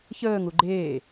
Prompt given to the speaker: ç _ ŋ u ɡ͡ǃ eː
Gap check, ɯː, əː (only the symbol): əː